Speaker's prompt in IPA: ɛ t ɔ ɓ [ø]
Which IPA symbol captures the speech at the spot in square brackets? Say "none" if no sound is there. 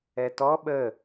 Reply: ə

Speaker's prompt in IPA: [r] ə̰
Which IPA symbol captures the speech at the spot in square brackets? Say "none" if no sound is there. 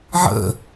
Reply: ʕ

